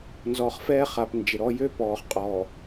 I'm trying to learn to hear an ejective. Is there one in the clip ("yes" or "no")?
yes